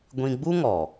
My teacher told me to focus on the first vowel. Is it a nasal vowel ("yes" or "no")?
yes